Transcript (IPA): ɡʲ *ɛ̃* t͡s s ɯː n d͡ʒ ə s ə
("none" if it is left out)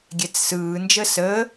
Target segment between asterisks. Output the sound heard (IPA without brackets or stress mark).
ɛ